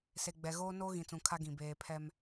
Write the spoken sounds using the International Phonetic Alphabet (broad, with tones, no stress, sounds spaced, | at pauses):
s e˨ ɡ͡b ɛ˨ ɣ oː˦ n oː˦ ɣ ĩ˨ t͡s ũ˨ kʰ a˦ ɡ ĩ˨ b eː˨ pʰ ɛ˦ m